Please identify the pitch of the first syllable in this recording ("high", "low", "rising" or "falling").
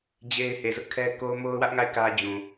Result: high